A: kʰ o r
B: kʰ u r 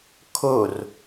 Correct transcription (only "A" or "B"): A